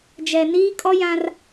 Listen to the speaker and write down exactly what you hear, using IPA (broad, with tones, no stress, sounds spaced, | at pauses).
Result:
d͡ʒ ɛ˨ n iː˦ kʼ ɔ˦ j ã˦ r